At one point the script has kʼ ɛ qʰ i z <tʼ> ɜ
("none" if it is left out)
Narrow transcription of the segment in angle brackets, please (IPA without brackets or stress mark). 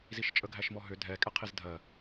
dʱ